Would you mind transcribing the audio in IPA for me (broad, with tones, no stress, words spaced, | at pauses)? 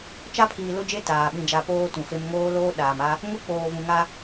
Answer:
t͡ʃa˦pʰiː˨lʊ˦d͡ʒe˦ taː˨ ɓĩ˨d͡ʒa˨ poː˦tũ˨fe˦m ŋoː˦loː˦ɗaː˨ma˦ | ŋʊ˦k͡poː˨vũ˨ŋa˦